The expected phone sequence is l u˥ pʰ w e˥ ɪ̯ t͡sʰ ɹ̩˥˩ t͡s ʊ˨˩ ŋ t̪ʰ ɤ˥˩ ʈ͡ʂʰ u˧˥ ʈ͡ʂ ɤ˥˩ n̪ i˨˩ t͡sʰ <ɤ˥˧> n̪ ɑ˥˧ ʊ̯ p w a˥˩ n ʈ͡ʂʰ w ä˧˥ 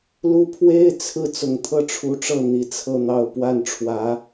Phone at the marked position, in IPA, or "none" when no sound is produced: ɤ˥˧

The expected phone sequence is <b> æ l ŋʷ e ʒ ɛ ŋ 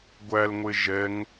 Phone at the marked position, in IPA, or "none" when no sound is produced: ɡʷ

